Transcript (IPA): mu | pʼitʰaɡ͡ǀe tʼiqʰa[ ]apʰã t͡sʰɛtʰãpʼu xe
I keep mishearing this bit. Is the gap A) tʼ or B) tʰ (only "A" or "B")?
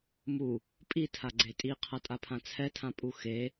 A